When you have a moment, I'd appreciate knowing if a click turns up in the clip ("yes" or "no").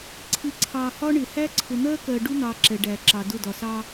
yes